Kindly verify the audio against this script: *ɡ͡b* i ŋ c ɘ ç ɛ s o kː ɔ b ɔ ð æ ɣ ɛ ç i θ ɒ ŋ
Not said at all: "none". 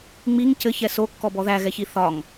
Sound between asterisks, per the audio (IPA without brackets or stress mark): ŋ͡m